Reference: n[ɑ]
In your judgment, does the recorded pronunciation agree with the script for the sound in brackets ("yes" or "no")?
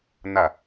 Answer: no